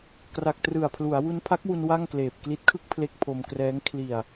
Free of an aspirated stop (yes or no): no